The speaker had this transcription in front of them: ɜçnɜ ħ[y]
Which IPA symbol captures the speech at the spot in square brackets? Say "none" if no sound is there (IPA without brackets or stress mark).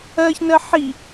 i